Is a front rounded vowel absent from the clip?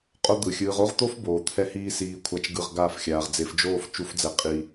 yes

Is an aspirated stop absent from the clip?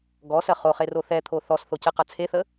no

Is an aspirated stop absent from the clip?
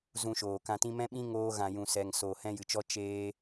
yes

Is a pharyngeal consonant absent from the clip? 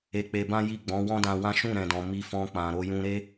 yes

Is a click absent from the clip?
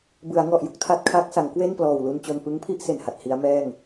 yes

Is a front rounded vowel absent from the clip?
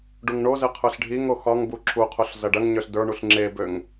no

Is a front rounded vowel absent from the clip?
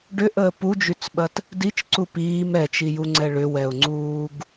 no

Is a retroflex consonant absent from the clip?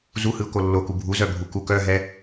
yes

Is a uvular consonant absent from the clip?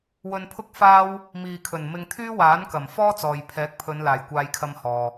yes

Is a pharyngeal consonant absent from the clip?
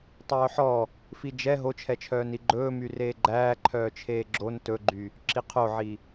no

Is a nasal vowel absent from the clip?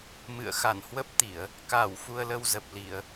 yes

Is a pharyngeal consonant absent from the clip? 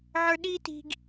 no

